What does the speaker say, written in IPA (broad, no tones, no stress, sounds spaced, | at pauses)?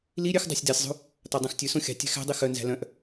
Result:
l i ɾʲ ø x dˤ æ̤ sʲ d æ sʲ zˤ ṳ | t ɑ dˤ œ̃ x tʲ ʉ s õ xʲ ɑ̤ tʲ æ̤ x æ̤ dˤ i x œ n z æ̤ l œ̃ ʔ